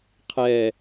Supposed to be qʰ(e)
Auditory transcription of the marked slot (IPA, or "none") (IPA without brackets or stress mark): ɛ